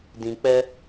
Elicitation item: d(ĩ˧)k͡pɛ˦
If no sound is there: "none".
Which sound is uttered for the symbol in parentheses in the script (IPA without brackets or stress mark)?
ĩ˧